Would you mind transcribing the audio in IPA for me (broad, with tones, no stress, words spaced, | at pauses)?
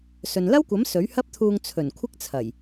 sɵ˨nlɐ˥wkʷɐ˨˥m sɵ˨˥ɥhɐ˥p̚t̪ʰuː˧ŋ t͡sʰɵ˨˩nkʷʰɪ˥k̚t͡sʰɐ˨˩j